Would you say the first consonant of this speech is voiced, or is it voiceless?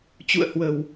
voiceless